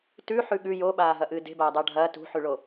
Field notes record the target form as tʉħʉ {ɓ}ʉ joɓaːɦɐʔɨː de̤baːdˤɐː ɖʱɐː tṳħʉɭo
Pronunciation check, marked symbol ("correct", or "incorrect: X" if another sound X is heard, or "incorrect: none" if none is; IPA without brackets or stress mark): incorrect: ɠ